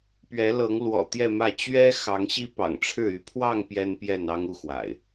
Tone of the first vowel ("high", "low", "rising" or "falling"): rising